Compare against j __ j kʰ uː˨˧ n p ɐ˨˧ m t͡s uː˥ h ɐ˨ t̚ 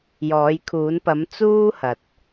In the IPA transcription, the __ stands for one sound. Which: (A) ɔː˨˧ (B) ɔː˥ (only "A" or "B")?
A